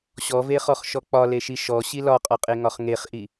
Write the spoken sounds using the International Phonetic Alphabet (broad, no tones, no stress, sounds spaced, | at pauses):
ɕ ɔ v e χ ɔ χ ʃ ɔ k͡p ɒ l e ʃ i ʃ ɔ ɕ i l ɒ qʼ ɒ qʼ e ŋ ɒ χ ŋ e χ ʔ i